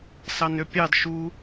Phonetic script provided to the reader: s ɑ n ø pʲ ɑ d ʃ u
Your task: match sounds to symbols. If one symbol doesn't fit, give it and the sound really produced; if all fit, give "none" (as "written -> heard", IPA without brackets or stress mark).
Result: none